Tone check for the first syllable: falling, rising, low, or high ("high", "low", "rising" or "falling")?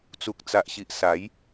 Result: low